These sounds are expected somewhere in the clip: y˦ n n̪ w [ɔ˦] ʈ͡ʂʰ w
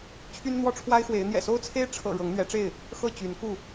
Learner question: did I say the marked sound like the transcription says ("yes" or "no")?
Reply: yes